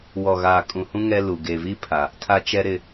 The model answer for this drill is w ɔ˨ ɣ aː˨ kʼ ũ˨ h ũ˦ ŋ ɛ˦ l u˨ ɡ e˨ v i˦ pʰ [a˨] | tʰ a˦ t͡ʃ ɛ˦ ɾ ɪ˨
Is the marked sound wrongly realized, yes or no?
no